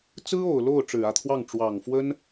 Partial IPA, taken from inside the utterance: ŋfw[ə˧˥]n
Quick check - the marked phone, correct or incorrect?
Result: incorrect